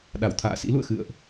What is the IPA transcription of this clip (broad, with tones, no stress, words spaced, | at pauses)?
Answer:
ɗa˧˩wt̪ʰa̰ː˧˨sḭ˧˥lṵ˧˨ə̯ xɨ̰˧˨ə̯ʔ